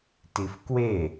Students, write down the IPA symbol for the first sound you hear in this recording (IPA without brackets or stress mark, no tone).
t